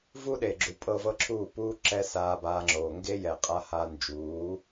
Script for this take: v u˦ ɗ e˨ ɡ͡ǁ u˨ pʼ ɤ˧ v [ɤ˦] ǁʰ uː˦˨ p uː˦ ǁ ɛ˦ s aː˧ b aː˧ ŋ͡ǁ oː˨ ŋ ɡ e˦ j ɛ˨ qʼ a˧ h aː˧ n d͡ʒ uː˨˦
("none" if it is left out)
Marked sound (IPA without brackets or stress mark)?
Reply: ɤ˦